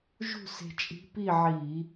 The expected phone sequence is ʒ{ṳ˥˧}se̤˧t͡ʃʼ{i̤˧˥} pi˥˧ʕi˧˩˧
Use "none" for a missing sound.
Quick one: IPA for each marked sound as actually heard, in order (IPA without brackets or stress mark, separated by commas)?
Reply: ṳ˥˧, i̤˧˥